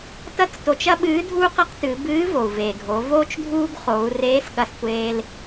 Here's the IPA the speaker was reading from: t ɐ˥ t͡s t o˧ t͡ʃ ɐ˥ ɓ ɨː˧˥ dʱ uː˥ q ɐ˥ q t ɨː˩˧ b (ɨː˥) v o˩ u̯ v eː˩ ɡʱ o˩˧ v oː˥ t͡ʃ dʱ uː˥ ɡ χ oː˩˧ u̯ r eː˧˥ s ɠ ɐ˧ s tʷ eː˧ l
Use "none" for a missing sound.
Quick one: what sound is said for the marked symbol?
ɨː˧˥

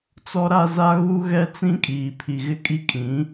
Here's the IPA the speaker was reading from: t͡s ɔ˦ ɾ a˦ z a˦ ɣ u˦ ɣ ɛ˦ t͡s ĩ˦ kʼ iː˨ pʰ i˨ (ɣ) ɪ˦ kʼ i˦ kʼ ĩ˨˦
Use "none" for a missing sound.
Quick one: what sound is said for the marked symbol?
ɣ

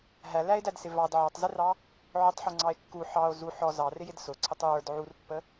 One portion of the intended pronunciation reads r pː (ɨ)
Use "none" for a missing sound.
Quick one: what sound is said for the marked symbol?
ə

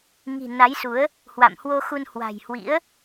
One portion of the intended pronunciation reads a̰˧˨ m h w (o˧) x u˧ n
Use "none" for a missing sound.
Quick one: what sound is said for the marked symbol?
o˧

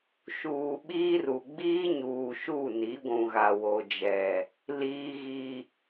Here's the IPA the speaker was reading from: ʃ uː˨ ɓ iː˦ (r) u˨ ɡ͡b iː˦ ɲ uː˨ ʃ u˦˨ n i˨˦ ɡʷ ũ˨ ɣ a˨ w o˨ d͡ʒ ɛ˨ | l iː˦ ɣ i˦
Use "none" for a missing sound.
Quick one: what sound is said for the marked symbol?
r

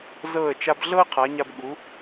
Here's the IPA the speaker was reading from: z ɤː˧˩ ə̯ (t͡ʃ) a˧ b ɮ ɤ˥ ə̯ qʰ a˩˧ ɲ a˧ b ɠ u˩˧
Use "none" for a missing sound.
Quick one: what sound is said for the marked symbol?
t͡ʃ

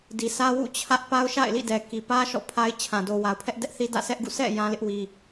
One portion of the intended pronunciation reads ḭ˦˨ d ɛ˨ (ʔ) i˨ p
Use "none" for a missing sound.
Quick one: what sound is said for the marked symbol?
k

